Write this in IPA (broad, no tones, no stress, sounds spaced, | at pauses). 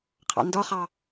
qʰ ɑ̰ n d ɔ χ ɑ